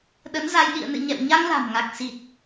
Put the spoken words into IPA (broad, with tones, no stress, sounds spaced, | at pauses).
ɗ ə˨˦ n z a˧ j ɗ ḭ˧˨ ə̯ n ɨ̰˧˨ ɲ ɛ̰˧˨ w ɲ a˧ ŋ l a̤˨˩ m ŋ a˨˩ k̚ s i˨˩ t̚